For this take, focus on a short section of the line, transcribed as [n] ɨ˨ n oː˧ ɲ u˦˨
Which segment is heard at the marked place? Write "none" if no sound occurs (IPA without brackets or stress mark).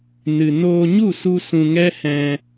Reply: n